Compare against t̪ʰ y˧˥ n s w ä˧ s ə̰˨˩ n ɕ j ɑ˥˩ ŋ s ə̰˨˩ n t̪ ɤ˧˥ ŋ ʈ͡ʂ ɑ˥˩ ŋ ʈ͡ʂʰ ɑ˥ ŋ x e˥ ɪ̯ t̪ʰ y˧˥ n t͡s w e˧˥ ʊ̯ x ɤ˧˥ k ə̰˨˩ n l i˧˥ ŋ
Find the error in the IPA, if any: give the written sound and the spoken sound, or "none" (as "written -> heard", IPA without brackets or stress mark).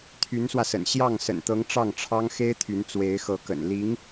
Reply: ʊ̯ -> ɪ̯